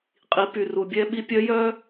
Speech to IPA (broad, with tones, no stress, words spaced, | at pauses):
qʼi˩˧py˩ru˩bʲɛ˧ ɓi˧˥pʲœ˧˥jœ˥